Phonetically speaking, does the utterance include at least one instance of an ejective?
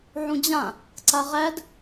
no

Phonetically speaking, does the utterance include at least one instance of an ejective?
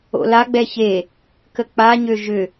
no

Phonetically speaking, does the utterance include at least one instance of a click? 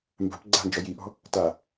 yes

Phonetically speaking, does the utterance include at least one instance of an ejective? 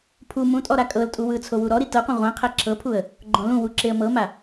yes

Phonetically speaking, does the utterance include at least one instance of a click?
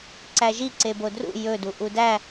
yes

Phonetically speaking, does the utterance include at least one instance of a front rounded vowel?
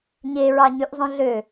yes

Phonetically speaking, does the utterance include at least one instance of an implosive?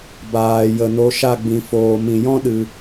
yes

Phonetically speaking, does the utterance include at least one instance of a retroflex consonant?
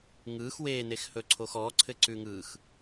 no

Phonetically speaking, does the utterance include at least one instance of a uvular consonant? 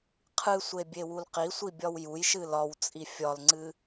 yes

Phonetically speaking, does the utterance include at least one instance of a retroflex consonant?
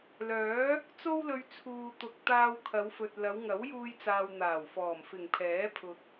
no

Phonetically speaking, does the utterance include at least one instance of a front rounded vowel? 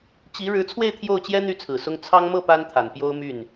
yes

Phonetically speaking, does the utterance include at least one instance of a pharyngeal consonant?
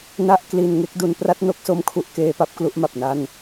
no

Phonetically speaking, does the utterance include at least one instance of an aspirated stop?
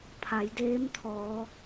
yes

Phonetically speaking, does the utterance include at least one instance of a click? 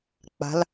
no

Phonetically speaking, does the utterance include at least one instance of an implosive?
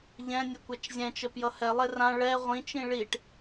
no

